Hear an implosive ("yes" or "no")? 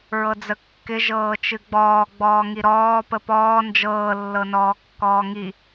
no